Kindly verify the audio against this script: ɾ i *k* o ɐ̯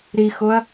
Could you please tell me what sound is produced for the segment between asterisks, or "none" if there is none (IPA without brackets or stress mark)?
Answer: x